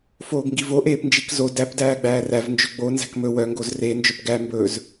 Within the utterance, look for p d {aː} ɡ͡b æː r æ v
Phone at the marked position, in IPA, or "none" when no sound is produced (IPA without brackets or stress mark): æː